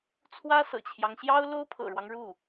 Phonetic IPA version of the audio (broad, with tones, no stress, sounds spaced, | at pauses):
t͡sʰ w ä˥ s ɤ̰˨˩ t͡ɕʰ j ɑ˦ ŋ ɕ j ɑ˥ ʊ̯ l o˥ ʊ̯ pʰ ɤ̰˨˩ ɻ w ɑ˦ ŋ ɻ u˥˩